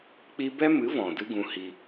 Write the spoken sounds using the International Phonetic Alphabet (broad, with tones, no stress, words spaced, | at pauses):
k͡pi˧bɛ˦mɨ˨˦ vɔ̃˨dɨ˦ɡũ˧hi˧